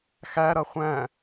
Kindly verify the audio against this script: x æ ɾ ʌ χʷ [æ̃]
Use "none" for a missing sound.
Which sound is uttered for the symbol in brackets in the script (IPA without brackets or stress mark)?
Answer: æ̃